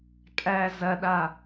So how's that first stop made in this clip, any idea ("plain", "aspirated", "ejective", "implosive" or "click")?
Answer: ejective